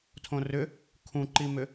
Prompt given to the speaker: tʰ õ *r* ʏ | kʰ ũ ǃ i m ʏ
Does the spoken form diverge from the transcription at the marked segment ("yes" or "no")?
no